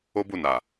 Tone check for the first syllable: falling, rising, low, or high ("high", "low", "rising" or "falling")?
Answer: high